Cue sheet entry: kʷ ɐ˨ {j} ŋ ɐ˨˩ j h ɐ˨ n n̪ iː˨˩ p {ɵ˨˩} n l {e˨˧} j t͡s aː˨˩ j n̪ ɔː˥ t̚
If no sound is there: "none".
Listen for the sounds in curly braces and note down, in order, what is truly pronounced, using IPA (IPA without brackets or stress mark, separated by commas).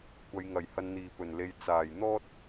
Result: j, ɵ˨˩, e˨